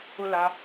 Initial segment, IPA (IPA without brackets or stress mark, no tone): ʊ